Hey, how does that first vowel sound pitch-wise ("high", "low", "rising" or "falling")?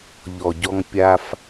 low